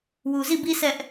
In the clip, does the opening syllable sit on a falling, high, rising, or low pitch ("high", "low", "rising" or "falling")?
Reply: low